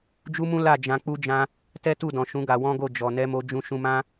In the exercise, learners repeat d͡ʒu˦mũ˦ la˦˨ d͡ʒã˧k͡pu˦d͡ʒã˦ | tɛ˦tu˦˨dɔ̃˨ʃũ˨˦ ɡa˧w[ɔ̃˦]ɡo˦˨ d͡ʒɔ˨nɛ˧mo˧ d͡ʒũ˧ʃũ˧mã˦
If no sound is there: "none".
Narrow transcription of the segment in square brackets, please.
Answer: ɔ̃˦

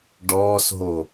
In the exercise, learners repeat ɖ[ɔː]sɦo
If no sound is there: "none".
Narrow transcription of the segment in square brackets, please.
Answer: ɔː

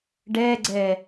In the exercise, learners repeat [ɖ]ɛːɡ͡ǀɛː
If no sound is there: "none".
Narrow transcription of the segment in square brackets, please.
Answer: ɖ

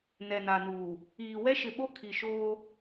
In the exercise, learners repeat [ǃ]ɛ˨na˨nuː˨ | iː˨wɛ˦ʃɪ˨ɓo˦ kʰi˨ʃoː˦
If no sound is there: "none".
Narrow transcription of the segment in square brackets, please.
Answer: n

